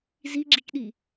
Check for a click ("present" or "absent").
present